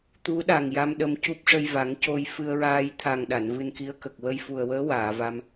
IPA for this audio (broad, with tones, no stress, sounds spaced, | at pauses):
t̪ u˧˥ ɗ a˨˩ ŋ j a˧ m ɗ ə˧ m c u˦˥ p̚ ʂ ə˧ j v a˨˩˦ ŋ c o˧ j f ɨ˧ ə̯ ɹ aː˧ j t̪ʰ a˨˩ ŋ ɗ a˨˩˨ n v ɨ˧ n k i˧˥ ə̯ k ə˨˩ k̚ w ə˧ j f u˨˩ ə̯ w əː˧˥ w aː˨˩˨ v a˧ m